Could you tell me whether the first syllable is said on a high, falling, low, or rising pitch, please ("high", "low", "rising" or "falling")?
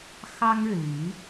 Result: high